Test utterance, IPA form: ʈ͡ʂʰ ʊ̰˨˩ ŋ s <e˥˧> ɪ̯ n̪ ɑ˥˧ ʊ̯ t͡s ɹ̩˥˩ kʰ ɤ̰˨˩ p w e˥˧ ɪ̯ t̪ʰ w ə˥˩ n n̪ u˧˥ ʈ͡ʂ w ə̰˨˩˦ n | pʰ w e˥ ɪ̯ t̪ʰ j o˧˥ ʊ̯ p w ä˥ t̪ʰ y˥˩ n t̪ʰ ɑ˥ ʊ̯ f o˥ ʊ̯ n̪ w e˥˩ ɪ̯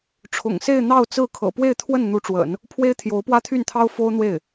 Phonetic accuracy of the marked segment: correct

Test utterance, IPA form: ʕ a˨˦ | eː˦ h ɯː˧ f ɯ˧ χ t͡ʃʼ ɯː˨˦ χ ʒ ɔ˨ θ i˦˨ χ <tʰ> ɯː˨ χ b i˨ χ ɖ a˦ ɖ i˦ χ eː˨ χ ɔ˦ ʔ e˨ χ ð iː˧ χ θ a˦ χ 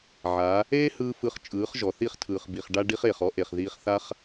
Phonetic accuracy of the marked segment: correct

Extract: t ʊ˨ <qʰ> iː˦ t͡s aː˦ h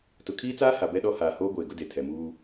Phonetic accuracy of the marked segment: incorrect: kʰ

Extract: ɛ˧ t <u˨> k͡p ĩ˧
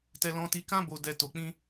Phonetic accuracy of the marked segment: incorrect: o˨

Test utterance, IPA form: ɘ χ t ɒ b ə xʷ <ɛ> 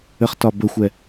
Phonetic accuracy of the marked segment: correct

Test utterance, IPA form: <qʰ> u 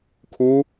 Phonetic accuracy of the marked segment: incorrect: kʰ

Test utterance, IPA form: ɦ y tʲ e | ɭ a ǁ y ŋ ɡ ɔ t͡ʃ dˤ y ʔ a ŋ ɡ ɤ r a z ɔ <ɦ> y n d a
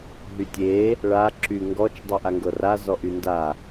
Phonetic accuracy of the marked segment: incorrect: ʔ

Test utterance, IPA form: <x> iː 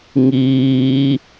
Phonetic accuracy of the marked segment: incorrect: ŋ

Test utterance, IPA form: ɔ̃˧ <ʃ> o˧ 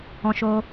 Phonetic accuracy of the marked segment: correct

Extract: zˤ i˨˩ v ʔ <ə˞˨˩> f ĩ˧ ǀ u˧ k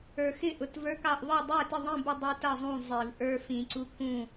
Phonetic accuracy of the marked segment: incorrect: ə˞˧˥˧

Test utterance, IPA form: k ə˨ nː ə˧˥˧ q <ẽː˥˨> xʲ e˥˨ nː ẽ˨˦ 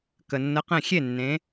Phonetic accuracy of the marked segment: incorrect: ẽ˥˨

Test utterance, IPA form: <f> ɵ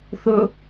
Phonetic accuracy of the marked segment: incorrect: θ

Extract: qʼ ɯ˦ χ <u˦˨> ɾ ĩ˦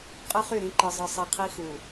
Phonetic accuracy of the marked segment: incorrect: y˦˨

